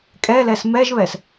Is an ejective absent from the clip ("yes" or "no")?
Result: no